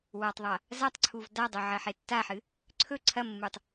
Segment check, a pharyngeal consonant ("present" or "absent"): present